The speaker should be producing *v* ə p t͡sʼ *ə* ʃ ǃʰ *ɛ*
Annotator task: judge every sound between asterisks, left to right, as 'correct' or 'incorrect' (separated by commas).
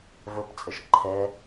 correct, correct, correct